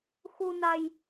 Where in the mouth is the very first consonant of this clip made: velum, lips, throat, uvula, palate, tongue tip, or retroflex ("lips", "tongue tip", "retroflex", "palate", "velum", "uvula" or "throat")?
velum